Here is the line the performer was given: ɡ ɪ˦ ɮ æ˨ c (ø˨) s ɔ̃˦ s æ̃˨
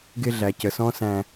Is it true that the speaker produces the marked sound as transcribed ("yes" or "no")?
no